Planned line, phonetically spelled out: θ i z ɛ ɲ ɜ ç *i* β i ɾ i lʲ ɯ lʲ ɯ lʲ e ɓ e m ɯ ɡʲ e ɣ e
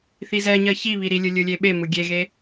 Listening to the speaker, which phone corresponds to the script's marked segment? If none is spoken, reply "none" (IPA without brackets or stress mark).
i